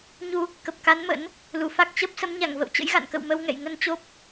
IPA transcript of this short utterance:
ɲu˧ | kə˨˩p̚ka˨˦nmə̰˧˥n | lu˧˩fa˦˥k̚ t͡ɕə˦˥p̚ sə˨˦mɲa˧˩ŋvə̰˧˨wt͡ɕə̰˧˥j ɣa̰˧˨nkə̰˧˨wmə˧w ŋɛ̰˧˨jŋə˧nt͡ɕo˦˥p̚

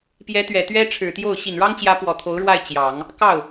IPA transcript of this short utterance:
pjɛ˧˥ t̪ɥɛ˨˩ t̪ɥɛ˥ʈ͡ʂʰɻ̩˨˩t̪jo˥˩ʊ̯ ɕi˨˩nɻɑ˥ŋt͡ɕjä˧˥ pwɔ˨˩t̪ʰo˧˥ʊ̯ɻwa˥˩ɪ̯ t͡ɕjɑ˨˩˦ŋ | kɑ˥˩ʊ̯

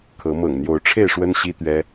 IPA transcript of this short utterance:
kʰɤ˨˦ mɤ̰˨˩ŋn̪jo˨˦ʊ̯ ʈ͡ʂʰe˥˨ɪ̯ʂwə˦nɕi˦ t̪ɥɛ˦

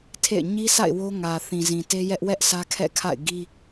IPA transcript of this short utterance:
tʰḛ˦˨ɪ̯ ɲi˦sʰa̰˦˨ɪ̯ wo˦ ŋä˨θĩ˨ zĩ˨te˦jɛ˦ʔ wɛ˦ʔ sʰä˦kʰɛ̰˦˨kʰa̰˦˨ɪ̯ɡi˦

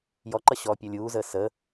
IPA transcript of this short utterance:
jɔǃʌ ɕɔːpʲɔlʲuːzəː sə

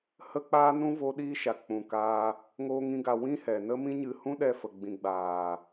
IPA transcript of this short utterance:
hə˦ k͡paː˦nũ˦ vo˦ɗiː˦ʃa˨ k͡pũ˨kaː˧ | ŋoː˦ŋĩ˦ɡa˧ wĩ˦ hɛ˨nə˦mĩ˦ɲɨ˧ hũ˦ɗɛ˧fə˨ɡ͡bĩ˨ ɡ͡baː˨

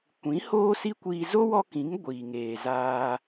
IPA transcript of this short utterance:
kʷĩ˨˦ hoː˦si˦kʷiː˧ zo˦ wɔ˦kĩ˨˦ŋ ɡʷiː˨ ŋeː˨ zaː˦

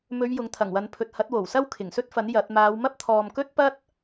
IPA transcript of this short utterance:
mɵ˨˧ɥ jʊ˨˥ŋt̪ʰɐ˨˩ŋwɐ˨˧npʰɵ˨t̚ hɐ˨˥t̚wo˨˩wsɐ˥w kʰɪ˨˩ŋsɵ˥t̚fɐ˨˥n jɐ˨˥t̚ maː˨˧wmɐ˥p̚t̪ʰɔː˨m kɵ˥t̚pɐ˥t̚

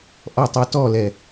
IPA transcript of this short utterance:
ʔɔtˤotɔlɛ

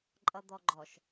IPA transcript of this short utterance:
ǃʼʌd̪ɔɡ͡ǃɔʃ

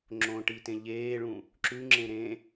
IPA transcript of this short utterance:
ŋ͡ǁõʈitẽ ʎeːɭũ | ǁʉŋ͡ǁẽ ɾẽ

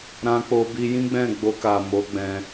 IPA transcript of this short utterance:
ɾã˧k͡po˧bi˧ jĩ˦ɡ͡bɛ̃˦˨ɡ͡bo˧ka˨ mo˨˦ɡ͡bɛ̃˧

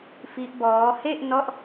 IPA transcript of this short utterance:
fi˦˥ʔbɔː˦˥ he˥˩ʔnɔ˦˥ʔ

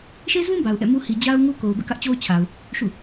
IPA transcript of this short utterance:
ʃe˦zũ˦ ba˨ʊ̯ʔɛ̰˦˨mu˦ hi˨d͡ʑa˦ʊ̯ ŋu˦ ko˨ʊ̯bɛ̰˦˨kä˦ʔ t͡ɕo˦ʊ̯t͡ɕʰa˨ʊ̯ | ʃṵ˦˨

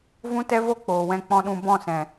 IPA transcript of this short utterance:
vũ˦tɛ˦vo˦ k͡poː˨wɛ̃˧ k͡pɔ̃˧ɗũ˧ bɔ̃˦˨sɛ̃˨

